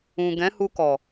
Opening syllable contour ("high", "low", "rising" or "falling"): low